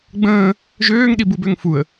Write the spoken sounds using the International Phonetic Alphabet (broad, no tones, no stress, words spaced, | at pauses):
ɡ͡bə̃ː | ʒøːŋɗibubøŋ fuə̯